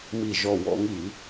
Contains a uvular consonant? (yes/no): no